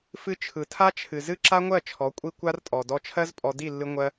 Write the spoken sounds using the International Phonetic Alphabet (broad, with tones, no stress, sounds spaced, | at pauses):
f ɨ˦ t͡ʃʰ ɯ˨ tʰ a˦ t͡ʃʰ ɨ˨ z ɨ˦ ǁ a˦ ŋʷ ɜ˦˨ t͡ʃʰ ɔ˨˦ kʷʼ i˦ kʷ a˦ r tʼ ɔ˨ d ɔ˧ t͡ʃʰ ɜ˦ z pʼ ɔ˧ d i˦˨ lː ɨ˧ ŋʷ ɜ˧